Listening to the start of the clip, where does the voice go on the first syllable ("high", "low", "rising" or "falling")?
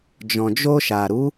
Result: low